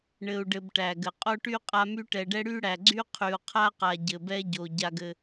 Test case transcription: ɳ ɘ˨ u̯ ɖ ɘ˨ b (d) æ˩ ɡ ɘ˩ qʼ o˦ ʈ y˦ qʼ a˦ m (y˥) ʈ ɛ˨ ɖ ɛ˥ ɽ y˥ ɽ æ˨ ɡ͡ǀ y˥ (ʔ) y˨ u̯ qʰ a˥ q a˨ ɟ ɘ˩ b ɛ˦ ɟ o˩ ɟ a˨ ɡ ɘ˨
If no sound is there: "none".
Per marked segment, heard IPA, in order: ʈ, y˦, qʰ

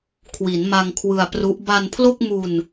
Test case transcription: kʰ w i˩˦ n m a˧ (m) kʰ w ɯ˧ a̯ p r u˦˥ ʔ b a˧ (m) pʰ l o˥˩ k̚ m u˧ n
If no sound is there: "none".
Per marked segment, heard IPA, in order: ŋ, n

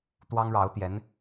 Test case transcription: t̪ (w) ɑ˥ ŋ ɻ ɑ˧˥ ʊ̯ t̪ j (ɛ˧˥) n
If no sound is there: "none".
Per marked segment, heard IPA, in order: w, ɛ˧˥

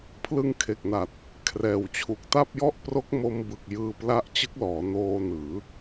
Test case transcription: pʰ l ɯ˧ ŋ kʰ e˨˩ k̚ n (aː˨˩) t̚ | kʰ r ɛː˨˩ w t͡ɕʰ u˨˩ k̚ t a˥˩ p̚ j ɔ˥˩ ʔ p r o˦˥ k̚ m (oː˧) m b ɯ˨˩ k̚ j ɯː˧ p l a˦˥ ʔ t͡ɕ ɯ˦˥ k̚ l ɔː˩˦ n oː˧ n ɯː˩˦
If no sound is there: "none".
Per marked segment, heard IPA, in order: aː˨˩, o˧

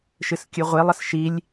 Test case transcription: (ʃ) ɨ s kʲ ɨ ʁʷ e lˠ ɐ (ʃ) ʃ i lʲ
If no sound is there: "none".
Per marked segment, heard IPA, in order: ʃ, s

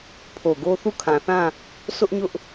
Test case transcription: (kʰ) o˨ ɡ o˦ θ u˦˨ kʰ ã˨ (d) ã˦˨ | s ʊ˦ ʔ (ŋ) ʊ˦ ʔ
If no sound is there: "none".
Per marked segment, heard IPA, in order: pʰ, θ, ɲ

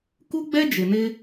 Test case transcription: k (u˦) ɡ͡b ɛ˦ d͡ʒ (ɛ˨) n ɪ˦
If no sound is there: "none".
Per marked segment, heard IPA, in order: u˦, ɪ˨

